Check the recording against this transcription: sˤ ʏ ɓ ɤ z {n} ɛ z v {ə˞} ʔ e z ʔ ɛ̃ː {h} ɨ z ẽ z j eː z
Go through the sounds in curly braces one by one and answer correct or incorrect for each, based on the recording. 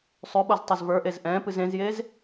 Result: incorrect: tˤ, correct, incorrect: p

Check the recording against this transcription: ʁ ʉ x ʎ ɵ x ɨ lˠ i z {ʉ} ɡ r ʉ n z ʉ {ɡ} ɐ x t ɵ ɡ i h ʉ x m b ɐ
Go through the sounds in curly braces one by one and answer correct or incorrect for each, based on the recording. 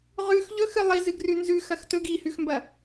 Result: incorrect: ɨ, incorrect: x

